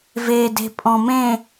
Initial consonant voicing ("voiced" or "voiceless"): voiced